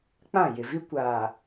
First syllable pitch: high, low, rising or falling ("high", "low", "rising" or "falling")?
falling